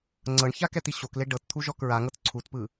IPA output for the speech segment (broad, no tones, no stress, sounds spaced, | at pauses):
ŋ͡ǀ ɤ ɳ ç a k ɛ t̪ i ɕ o k l e ɖ ɤ t t̪ʰ u ʒ ɔ k ɹ a ŋ ɤ t ǀʰ u t p ɯ